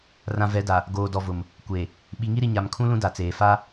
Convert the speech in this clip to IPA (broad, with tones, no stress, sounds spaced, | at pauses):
r ã˨ v ɛ˨˦ d a˨ | ɡ oː˨ d ɔ˨ v ʊ˨ m | kʷ e˨ | ɓ i˨ ŋ i˦ ɾ i˨ ɲ a˨ m kʰ ũ˦ l ũ˦ d a˨ t͡s eː˨ f a˦